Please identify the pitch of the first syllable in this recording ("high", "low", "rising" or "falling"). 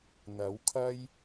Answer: rising